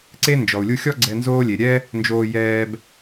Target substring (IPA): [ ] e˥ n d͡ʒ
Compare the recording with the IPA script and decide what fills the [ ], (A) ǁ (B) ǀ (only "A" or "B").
B